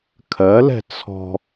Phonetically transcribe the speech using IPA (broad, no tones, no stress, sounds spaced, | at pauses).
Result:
kʰ ɜ l ɛ̤ t͡sʰ ɔ̤